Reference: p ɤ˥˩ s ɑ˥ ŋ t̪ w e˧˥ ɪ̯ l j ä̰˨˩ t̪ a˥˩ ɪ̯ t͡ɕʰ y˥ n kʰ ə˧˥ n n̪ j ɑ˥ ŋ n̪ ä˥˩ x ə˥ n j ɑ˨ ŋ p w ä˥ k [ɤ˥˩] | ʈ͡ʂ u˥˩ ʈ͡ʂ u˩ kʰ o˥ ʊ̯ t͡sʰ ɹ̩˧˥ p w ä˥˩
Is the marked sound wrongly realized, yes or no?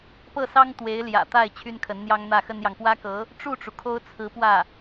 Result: yes